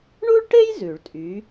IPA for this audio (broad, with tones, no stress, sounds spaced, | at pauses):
ɳ u˥ ɭ ʈ e˥ j z ʉ˨˩˦ ɭ tʼ y˨˥